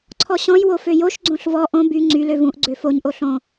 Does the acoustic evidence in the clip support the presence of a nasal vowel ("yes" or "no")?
yes